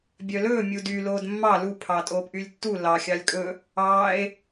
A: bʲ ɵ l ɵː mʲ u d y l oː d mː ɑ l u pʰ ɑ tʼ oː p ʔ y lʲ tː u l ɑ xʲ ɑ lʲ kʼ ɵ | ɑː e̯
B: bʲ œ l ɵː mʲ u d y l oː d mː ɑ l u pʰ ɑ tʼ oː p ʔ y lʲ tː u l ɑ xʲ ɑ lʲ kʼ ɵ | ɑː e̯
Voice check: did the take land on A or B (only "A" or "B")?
B